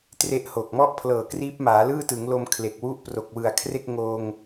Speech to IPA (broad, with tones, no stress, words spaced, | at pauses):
tre˦˥ʔho˨˩k̚ mɔ˥˩ʔpʰlɤː˨˩kriː˦˥p̚ maː˩˦lɯː˥˩tɯ˩˦ŋlo˧m kʰle˨˩k̚wu˦˥ʔ pro˨˩k̚wɯ˨˩a̯kʰre˥˩k̚ŋoː˧ŋ